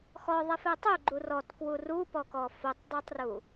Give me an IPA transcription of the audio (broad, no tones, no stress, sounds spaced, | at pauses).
x ɔ ðˤ ɛ f ɛ tˤ u ɡ͡ǃ u r ɔ t k w u r u p ɔ k ɔ f o tˤ dˤ u tˤ r u